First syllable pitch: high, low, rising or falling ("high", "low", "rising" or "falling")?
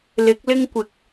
rising